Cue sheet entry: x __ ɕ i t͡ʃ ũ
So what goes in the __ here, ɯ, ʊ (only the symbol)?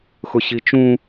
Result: ʊ